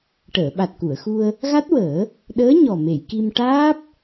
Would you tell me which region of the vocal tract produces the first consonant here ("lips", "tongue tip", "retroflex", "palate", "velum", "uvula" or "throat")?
retroflex